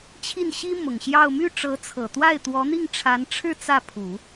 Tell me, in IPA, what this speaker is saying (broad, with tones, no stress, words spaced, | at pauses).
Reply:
t͡ɕʰi˥˩nɕi˥ mʊ˨˩ŋɕjɑ˥˧ʊ̯ my˥˩ʈ͡ʂɤ˧˥t͡sʰɤ˨˩t̪wa˥˩ɪ̯ t̪wɔ˧˥n̪i˥˩ŋʈ͡ʂʰa˧˥nʈ͡ʂʰɻ̩˥˧ t͡sä˥˩pʰu˨˩˦